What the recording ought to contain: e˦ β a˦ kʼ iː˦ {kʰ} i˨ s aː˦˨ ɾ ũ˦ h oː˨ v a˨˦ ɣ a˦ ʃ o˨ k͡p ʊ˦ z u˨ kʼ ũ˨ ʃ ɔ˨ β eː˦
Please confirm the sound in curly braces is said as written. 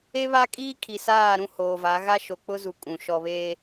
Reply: yes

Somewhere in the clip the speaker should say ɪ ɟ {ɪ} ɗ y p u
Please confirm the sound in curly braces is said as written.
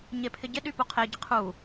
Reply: yes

